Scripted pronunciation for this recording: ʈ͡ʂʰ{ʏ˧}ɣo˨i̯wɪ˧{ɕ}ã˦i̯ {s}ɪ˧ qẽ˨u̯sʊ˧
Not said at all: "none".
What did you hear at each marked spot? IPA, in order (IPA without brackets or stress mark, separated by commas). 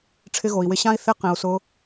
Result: ɪ˧, ɕ, θ